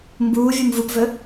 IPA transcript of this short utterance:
m b uː vʲ u m v u p v ɵ

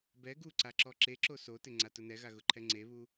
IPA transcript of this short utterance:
b ɛ ɡ u ǀ a ǁ ɔ ǁ e ǁ o s o t ɪ ŋ͡ǀ a t ʊ n ɛ ɣ a ɣ ʊ ǃʰ ɛ ŋ͡ǀ e β u

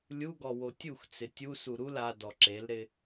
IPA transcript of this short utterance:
lʲ u ɡ ɔ w o tʲ u x t͡s ɪ tʲ u s u ɾ u l a d ɔ ǁ e l ɾ ɪ

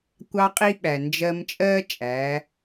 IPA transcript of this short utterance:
kʷ ɑ˧ qʼ i˧ ɓ æ˩ n d͡ʒ ɜ˧ m t͡ʃʼ ɜː˥ t͡ʃʼ æ˩˧

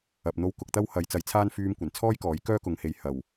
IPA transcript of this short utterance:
ɐ˨ p̚ n̪ o˧ w k ʊ˧ k̚ t̪ ɐ˥ w h ɐ˨˧ j t͡s ɐ˨˥ j t͡sʰ aː˥ n f yː˧ m kʷ ɐ˨˩ n t͡sʰ ɔː˥ j k ɔː˨˥ j k œː˥ k ʊ˨˧ ŋ h e˨ j h ɐ˨˩ w

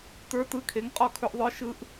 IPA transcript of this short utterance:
t ə˞˧˥ t ɯ˧˥ kʰ e˩˥ ŋ qʼ ɔ˥˨ kʰ ɵ˧˥ ʔ ðˤ ə˞˧˥ ʃ ɯ˧˥ ʔ

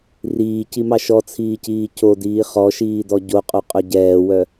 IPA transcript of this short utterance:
r iː c i m ɑ ʃ ɔ t͡sʰ iː c iː cʰ o d iː χ ɔ ʃ iː d ɔ ɟ o qʼ o qʼ œ ɟ ɛː w œ

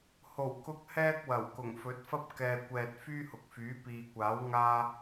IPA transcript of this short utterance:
h o˨˩ w k ʊ˧ k̚ h ɛː˥ k̚ w ɐ˨˩ w k ʊ˨˩ ŋ f ɵ˨˥ t̚ f ɐ˥ p̚ k ɛː˨ kʷ ɛː˨ t̚ f yː˥ h ʊ˨ k̚ f yː˨˥ p iː˨ kʷ aː˨˥ w ŋ aː˧

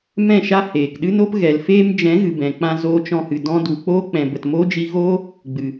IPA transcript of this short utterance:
m ɛ̃˦˨ ʃ a˦ h eː˨ k ɗ ɨ˦ n o˦ p ɣ ɛ˨ l f eː˧ m d͡ʒ ɛ̃˨˦ ɣ ɨ˨ b ɛ̃˨ k͡p ã˧ z oː˧ t͡ʃ ɔ̃˧ h ɨ˨ d ɔ̃˧ d u˨ k͡p oː˦ k͡p ɛ̃˨ b ə˨ t m oː˦ d͡ʒ i˧ ɣ o˦ | ɡ͡b ɨ˨

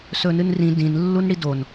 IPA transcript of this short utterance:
s ɵ n ɨ n r ĩ d ĩ n lː u n ɽ i d o n

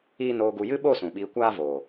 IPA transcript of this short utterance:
iː˦ n oː˧ ɡ u˧ j ɨ˦ ɓ o˦˨ s ũ˨ ɓ iː˧ kʷ aː˦ v oː˨

